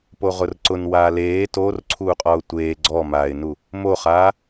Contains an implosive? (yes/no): no